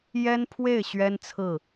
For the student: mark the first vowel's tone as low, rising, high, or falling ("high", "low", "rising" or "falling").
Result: high